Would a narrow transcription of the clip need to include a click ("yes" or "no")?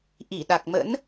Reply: no